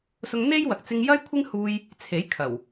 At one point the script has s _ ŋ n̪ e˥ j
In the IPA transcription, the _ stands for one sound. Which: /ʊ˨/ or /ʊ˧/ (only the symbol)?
ʊ˧